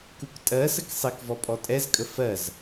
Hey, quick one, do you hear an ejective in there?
yes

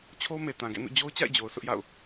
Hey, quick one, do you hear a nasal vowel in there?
yes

